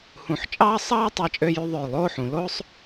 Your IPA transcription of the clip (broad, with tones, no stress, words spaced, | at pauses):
hũ˧˩ħt͡ʃʼɑː˥ sˤɑː˥tˤɑ˧t͡ʃʼø˧jy˧ ðˤø˧˩jlˠoː˥˧ħũ˩˧ lo˥sˤ